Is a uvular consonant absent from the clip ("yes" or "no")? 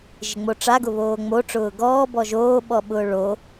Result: yes